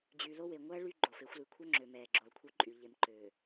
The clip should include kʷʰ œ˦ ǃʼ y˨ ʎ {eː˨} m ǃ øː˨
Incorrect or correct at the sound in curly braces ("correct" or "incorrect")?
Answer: incorrect